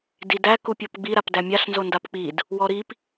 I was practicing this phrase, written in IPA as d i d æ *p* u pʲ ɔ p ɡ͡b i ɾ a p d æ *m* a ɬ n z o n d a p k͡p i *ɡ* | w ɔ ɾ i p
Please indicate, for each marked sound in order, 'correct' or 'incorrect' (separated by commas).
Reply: incorrect, incorrect, incorrect